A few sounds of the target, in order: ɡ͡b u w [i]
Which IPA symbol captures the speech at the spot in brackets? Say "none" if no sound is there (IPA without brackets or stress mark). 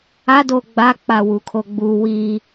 i